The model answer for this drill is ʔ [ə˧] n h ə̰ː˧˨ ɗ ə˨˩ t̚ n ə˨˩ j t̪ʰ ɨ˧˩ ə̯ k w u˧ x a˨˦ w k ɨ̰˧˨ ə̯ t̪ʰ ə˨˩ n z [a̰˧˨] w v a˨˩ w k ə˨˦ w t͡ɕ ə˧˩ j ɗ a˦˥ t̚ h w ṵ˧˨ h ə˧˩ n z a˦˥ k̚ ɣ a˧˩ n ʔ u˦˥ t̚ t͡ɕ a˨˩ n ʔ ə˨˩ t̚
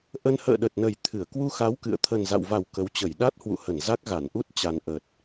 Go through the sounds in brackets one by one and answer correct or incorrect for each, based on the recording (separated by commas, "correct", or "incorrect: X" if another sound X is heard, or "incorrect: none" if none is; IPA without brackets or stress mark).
correct, correct